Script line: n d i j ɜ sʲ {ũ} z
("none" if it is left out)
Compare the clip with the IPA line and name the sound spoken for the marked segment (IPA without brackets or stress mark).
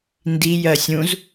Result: ũ